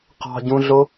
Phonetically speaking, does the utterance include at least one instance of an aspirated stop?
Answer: no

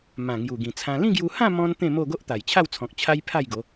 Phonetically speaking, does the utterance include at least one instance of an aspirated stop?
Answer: yes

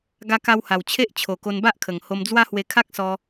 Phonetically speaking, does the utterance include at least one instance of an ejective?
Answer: no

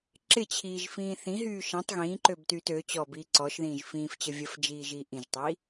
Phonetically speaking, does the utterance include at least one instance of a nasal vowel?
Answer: yes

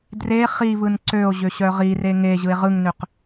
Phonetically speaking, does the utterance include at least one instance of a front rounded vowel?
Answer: yes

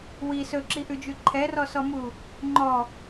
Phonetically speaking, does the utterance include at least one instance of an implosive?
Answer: no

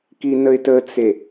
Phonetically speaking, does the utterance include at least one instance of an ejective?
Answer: no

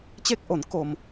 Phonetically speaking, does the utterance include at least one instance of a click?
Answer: no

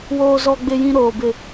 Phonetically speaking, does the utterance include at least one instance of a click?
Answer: no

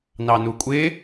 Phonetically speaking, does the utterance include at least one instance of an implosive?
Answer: no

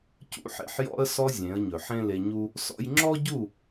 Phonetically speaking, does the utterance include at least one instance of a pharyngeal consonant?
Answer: yes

